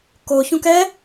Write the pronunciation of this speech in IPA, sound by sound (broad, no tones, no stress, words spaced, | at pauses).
koçũk ɛ